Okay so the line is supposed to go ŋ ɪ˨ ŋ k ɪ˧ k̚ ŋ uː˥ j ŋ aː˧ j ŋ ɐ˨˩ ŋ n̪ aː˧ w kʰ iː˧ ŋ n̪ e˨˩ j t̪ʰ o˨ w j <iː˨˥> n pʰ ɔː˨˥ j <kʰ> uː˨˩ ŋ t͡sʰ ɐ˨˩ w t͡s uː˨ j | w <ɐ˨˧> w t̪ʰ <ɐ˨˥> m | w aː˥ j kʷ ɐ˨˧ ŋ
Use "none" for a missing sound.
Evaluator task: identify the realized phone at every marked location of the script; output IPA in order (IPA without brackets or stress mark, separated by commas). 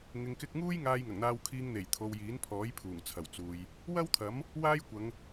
iː˨˥, pʰ, ɐ˥, ɐ˨˥